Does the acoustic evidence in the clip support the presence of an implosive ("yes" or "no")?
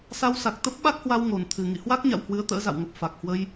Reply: yes